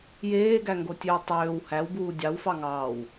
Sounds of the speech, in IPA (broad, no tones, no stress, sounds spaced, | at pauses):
j eː ɡ æ ŋ ɡ o tʲ ø w tˤ øː w h æ w b uː dʲ ɑ w f ɑ ŋ ɑː w